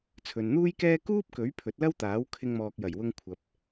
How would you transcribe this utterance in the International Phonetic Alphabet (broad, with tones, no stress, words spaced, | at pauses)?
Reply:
t͡sʰɵ˨nn̪uː˥jkɛː˥ kuː˥p̚kɵ˨˥ɥ pʰɵ˨˥t̚lɐ˥wt̪aː˨˥w kʰɪ˧ŋmɔː˨k̚jɐ˨˩jwʊ˧ŋ kʷʰɐ˨p̚